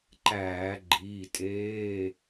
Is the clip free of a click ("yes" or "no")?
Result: no